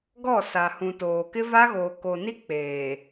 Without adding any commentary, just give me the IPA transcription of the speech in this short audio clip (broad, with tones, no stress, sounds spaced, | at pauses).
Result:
ɡ ɔ˦˨ s a˨ h ũ˨ t oː˨ k ɪ˦ v a˦ ɣ oː˨ k o˨ n i˦ k͡p eː˨